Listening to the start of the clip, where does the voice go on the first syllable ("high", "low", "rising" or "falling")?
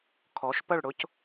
rising